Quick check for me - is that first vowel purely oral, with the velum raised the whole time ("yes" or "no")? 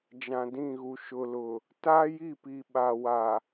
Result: no